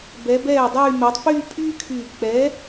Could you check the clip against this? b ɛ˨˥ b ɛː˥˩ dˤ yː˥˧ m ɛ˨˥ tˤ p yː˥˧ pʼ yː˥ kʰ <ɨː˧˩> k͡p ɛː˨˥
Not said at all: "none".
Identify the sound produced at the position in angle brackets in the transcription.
yː˧˩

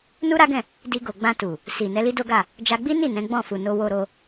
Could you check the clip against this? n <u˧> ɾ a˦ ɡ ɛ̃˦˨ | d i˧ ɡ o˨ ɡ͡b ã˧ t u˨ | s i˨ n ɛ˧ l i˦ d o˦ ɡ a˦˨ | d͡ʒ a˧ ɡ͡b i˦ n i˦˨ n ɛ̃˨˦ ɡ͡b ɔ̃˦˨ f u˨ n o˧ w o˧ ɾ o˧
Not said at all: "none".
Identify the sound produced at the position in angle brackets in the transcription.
u˦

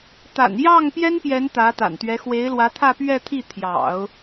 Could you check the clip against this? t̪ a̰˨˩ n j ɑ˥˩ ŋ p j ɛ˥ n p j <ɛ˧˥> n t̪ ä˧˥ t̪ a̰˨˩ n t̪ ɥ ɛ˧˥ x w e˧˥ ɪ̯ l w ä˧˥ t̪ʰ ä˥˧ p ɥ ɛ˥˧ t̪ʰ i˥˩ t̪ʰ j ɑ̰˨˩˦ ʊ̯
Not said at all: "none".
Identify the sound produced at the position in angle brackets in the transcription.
ɛ˧˥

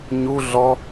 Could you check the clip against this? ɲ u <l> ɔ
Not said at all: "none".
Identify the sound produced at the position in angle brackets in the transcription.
ɮ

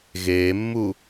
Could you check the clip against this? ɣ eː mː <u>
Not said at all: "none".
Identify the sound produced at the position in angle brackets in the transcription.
u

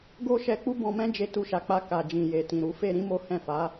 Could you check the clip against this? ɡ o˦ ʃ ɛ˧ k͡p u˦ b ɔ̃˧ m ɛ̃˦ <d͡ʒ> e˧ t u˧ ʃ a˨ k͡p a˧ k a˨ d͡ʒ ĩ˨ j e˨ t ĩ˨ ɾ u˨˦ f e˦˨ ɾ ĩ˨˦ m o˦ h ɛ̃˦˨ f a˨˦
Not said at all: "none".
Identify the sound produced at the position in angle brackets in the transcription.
d͡ʒ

